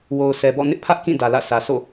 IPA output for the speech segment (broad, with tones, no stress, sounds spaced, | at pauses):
w o˨ ʊ̯ sʰ ɛ˨ b ɔ̰˦˨ n ɪ˦ ʔ pʰ ä˦ ʔ k ĩ˦˨ d ä˨ l ä̰˦˨ sʰ ä˨ sʰ o̰˦˨